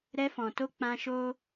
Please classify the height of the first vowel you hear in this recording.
mid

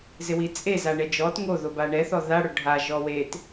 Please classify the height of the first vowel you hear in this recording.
high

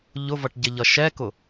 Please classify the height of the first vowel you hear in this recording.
high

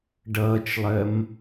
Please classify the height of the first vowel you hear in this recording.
mid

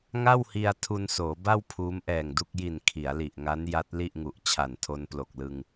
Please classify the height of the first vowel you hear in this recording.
low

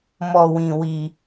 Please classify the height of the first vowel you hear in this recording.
mid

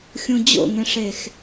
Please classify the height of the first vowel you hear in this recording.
high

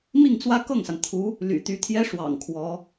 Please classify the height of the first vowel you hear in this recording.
high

